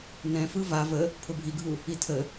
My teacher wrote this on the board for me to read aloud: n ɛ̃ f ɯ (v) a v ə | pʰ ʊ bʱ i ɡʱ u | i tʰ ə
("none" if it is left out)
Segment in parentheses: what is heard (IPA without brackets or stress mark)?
v